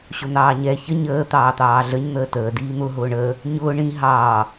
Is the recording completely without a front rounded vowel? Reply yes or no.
yes